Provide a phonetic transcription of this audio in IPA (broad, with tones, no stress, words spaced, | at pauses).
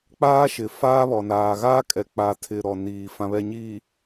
k͡paː˦ʃɪ˨faː˦βɔ˨ naː˨ɣaː˦kʼɛ˨ k͡pa˨tʰɪ˨ ɾɔ˨ niː˨ fã˨βɛ˨ɲiː˨